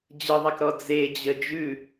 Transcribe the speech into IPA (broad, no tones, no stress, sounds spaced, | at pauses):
d͡ʑ ə ðˤ ɛ k ɾ ɔ d͡z e d͡ʑ ə d͡ʒ ʉ